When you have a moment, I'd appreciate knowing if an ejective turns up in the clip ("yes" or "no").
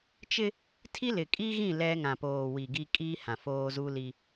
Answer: yes